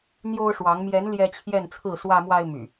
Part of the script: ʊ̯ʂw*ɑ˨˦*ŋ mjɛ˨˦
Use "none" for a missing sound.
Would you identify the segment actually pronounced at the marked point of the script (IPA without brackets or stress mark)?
ɑ˨˦